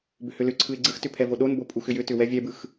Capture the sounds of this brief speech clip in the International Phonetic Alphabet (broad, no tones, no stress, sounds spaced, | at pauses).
b ʏ h ʏ l ʏ ǀʰ ɯ ɪ̯ ɡ͡ǀ ɯ x t ʏ pʰ ɛ v o ɗ o n b o pʼ u x ʏ j ʏ t ʏ w ɛ vʲ ɛ b ɯ x